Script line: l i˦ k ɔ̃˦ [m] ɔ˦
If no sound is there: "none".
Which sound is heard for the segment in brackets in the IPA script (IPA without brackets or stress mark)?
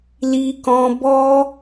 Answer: b